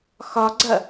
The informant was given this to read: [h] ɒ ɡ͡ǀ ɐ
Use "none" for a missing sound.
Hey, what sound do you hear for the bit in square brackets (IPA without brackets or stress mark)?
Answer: x